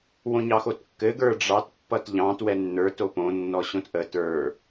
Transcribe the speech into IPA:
w õ ɲ ɑ x o t kː ɘ ɡ ə˞ ɖ͡ʐ ɑ t pː ʌ t ʎ ɑ̃ t w ɛ nː ə˞ t o p õ nː ɔ ɕ õ t ʔ ə t ə˞

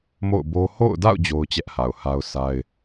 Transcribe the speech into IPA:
m o̰˦˨ ʊ̯ b o˦ h o̰˦˨ ʊ̯ d a̰˦˨ ʊ̯ d͡ʑ o˦ ʊ̯ t͡ɕ ɛ˦ ʔ h a˨ ʊ̯ h a˦ ʊ̯ sʰ a˦ ɪ̯

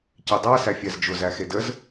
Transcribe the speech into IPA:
c e dˤ æ s æ fʲ æ z d͡ʒ ʊ z æ x e d ə z

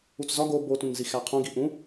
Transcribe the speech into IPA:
u t͡s z ɒ ɡ o b o t ũ n z i x æ qʰ ũ ɡ i ʔ ũ

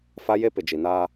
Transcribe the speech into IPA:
f a˦ j e˦ p ɪ˨ d͡ʒ i˨ n aː˦

